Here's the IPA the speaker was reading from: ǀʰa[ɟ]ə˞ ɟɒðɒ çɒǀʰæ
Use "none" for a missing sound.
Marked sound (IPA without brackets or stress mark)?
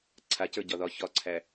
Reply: c